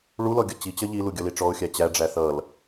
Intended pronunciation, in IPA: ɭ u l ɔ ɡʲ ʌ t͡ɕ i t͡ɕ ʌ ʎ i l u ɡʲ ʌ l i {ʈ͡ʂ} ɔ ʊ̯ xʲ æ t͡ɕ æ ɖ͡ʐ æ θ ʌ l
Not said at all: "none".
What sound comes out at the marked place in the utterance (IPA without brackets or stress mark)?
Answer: ʈ͡ʂ